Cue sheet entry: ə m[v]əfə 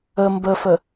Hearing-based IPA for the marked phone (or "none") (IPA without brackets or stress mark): b